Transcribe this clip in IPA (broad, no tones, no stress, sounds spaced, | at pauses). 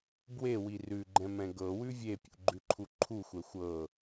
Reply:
b w e w i r ʉ ɡ͡ǃ ɛ̃ m ɛ̃ ɡ ɤ w ʉ vʲ e pʲ ṵ ɡ͡ǃ ʉ ǃʰ u ǃʰ u xʷ ɛ xʷ ɤ